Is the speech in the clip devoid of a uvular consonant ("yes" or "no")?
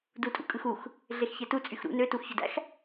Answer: yes